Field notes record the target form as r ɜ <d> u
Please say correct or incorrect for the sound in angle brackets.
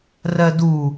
correct